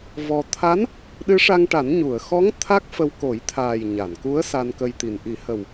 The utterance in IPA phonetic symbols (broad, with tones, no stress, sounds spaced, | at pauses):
v ɔ˧ t̪ʰ a˧˥ n | ɗ ɨ˧˥ ʂ a˧ ŋ ʈ a˨˩˦ n ɲ u˨˩˨ ə̯ x ɔ˧˥ ŋ t̪ʰ a˦˥ k̚ f ə˧ w k o˨˩˦ j t̪ʰ aː˨˩ j ɲ a˨˩˨ n k u˧˥ ə̯ s a˧ n k ə˧ j t̪ i˨˩ n ʔ i˨˩˦ h ə˨˩ w